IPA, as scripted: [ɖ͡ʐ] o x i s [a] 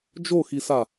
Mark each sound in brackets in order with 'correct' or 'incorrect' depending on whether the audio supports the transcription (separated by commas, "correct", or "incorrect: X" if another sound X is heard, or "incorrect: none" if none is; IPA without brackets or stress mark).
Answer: incorrect: d͡ʒ, correct